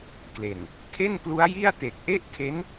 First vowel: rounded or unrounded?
unrounded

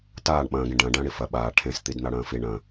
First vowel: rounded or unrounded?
unrounded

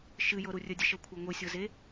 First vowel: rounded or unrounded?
unrounded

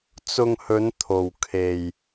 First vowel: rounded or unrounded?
rounded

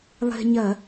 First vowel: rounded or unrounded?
unrounded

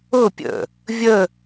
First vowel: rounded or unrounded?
rounded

